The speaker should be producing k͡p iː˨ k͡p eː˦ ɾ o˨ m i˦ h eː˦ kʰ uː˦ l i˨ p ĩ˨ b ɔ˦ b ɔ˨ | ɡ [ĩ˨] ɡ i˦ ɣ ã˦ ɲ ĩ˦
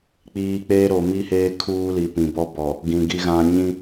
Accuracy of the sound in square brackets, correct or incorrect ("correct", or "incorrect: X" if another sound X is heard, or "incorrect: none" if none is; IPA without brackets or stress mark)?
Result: correct